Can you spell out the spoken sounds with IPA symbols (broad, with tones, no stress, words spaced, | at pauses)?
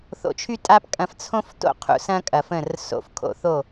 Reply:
θo̰˧t͡ʃʰy˦tʼa˦pkʼɐ̃˧f t͡sʰõ˦fto̰˦˨qʰṵ˧ sɐ̃˦kʼɐ˨fə̃˦˨r so̰˧f kʰo̰˧θo˦˨